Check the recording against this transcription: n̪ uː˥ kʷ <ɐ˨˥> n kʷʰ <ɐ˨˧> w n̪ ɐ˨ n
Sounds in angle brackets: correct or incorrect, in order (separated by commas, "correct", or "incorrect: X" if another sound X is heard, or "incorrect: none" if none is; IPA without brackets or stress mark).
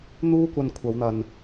incorrect: ɐ˧, correct